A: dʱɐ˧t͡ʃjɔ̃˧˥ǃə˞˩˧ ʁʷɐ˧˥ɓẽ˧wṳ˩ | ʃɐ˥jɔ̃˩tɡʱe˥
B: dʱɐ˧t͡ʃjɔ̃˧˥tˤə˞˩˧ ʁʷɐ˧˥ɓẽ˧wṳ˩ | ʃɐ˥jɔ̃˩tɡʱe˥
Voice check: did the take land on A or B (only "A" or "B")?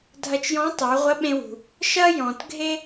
B